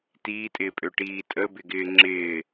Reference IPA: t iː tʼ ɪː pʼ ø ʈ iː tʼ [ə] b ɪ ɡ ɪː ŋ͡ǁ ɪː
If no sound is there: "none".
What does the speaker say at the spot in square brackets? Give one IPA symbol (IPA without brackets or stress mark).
ə